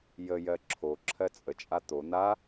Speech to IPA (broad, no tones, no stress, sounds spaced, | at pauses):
j ə j ɜ ǁʰ o ǁʰ ɜ t͡sʼ ə t͡ʃʼ a t̪ o n̪ a